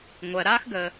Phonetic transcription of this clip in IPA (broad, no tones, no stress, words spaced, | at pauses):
ŋʷɜɾaːxɡəː